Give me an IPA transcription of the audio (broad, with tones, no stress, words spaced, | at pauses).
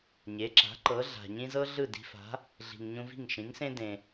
ɲe˩˥ǁa̤˩˥ ǃɤ˩˥ɮa̤˩ɲĩ˥ zɤ˥ɮɯ˥˩ di̤˧fa̤˩˥ | ɮi̤˩ŋɲũ˧vi̤˥˩ŋ ʃĩ˩˥ŋsẽ˥ dẽ˩